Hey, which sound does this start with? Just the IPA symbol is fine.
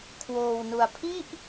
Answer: kʰ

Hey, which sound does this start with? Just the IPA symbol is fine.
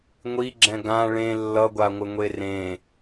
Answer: ŋʷ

